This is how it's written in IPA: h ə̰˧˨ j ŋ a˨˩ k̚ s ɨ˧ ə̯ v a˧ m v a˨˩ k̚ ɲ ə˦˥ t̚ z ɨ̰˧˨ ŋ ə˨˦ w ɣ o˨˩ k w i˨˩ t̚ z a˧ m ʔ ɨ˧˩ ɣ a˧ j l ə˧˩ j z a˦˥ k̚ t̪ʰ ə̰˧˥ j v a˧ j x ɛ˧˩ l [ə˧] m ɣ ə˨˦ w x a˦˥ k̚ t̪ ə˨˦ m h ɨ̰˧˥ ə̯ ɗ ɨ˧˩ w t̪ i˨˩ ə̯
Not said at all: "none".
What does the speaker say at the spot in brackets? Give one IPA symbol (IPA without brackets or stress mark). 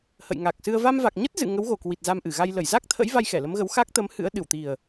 ə˨˦